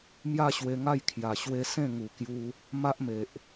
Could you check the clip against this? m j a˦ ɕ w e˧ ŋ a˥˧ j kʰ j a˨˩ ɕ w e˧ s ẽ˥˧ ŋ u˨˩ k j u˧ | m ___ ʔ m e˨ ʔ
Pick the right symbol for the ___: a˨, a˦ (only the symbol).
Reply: a˦